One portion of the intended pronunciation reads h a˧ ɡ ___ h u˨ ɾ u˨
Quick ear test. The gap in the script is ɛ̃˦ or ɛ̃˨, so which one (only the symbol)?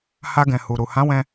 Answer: ɛ̃˨